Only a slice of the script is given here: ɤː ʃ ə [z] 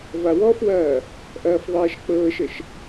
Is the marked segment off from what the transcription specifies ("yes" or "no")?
yes